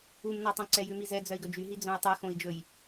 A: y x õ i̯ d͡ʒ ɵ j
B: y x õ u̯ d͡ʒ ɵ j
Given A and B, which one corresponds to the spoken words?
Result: A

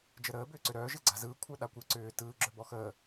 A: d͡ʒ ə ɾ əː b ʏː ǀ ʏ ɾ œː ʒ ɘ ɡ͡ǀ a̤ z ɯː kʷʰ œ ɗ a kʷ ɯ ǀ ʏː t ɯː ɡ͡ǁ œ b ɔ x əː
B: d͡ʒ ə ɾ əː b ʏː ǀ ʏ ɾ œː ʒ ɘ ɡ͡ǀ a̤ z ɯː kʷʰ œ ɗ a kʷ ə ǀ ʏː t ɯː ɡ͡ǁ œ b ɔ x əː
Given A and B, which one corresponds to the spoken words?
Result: A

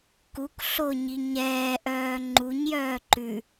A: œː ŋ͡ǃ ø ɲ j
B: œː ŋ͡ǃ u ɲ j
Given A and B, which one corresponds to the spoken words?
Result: B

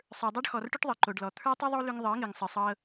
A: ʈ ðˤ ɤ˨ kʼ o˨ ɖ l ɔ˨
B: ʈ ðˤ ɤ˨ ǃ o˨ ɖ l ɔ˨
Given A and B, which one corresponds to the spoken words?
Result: B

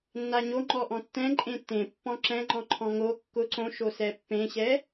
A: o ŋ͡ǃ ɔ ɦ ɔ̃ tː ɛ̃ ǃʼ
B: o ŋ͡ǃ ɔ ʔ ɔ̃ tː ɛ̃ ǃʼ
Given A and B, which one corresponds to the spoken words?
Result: B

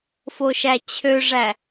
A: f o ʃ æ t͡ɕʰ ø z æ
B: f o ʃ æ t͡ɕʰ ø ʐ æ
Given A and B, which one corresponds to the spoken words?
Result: B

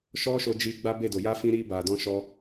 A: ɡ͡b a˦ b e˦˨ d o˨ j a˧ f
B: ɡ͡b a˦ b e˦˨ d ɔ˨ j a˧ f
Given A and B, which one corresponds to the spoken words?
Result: A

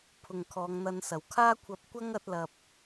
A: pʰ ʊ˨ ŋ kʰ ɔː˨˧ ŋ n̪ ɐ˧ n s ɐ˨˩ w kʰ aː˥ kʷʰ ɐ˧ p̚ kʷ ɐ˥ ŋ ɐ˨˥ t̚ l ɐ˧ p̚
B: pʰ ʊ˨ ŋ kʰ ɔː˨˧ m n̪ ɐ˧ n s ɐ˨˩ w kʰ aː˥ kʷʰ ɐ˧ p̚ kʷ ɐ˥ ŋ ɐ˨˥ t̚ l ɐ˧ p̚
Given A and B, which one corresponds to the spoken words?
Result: A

